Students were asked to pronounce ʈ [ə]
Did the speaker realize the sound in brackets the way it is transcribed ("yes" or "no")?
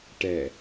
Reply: no